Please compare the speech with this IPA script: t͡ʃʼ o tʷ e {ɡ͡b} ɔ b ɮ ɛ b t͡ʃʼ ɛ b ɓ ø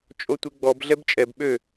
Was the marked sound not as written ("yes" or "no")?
no